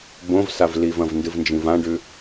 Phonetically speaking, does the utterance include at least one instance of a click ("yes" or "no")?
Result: no